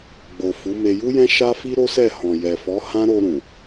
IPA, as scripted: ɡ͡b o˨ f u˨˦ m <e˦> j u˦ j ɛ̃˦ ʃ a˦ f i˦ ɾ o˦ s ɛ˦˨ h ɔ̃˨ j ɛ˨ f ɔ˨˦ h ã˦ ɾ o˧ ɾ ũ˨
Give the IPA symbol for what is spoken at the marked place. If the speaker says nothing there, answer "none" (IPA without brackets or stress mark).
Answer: e˧